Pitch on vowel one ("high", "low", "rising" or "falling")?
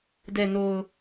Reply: low